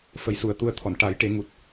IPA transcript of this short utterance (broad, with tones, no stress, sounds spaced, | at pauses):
f ə˨˩˦ j s u˨˩ ə̯ t̪ u˧ ə̯ t̪ʰ ɔ˨˩˨ n ʈ a˨˩˦ j ʈ e˨˩˦ ŋ u˨˩ t̚